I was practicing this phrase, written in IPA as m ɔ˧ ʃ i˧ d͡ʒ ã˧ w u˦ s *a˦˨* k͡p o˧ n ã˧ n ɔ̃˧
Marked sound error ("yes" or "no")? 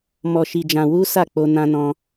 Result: no